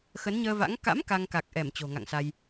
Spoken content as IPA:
x ə˨˦ n ɲ əː˧ v a̰˧˥ ŋ k a̰˧˥ m k a˧ ŋ k a˨˩ k̚ ʔ ɛ˧˩ m t͡ɕ o̤˨˩ ŋ a̰˧˨ ŋ s a˧ j

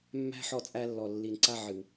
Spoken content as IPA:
mː æ̤˦ ħ ɔ˦˨ t͡sʼ æ˦ lː ɔ˨ lː i˨ n ǀ a˦ ʕ ɨ˨ w

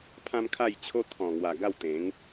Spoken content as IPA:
pʰ ã˦ m kʰ a˥˧ j t͡ɕʰ o˦ t̪ʰ ɔ̃˨˩ ŋ w a˨˩ ɡ a˥˧ w t̪ ẽ˨˦ ŋ

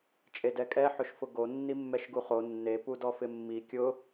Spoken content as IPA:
t͡ʃʼ e d ɛ kʼ ɛ ħ ʊ ʃ f ʊ ɡ o nː i mː ɛ ʃ ɡ u χ o nː e p u d ɔ f ɪ mː i kʲ ʊ

